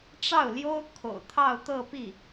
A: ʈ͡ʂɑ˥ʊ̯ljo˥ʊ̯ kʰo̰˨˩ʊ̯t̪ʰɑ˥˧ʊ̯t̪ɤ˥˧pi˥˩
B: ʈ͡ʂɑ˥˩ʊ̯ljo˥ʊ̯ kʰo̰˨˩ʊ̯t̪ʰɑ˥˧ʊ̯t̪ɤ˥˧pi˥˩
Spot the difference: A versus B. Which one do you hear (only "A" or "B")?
B